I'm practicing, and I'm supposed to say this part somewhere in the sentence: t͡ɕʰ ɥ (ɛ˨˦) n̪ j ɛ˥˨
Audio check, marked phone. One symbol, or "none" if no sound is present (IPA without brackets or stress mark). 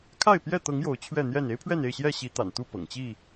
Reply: ɛ˥˨